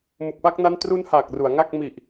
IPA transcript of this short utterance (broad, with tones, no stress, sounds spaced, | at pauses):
m u˨˩ k̚ p a˦˥ k̚ n a˦˥ n t r u˦˥ n h aː˨˩ k̚ r u˩˦ a̯ ŋ a˥˩ k̚ m i˨˩ ʔ